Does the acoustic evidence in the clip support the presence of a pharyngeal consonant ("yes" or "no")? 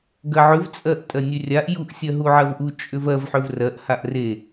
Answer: yes